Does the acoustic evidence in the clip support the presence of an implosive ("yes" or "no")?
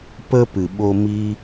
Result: yes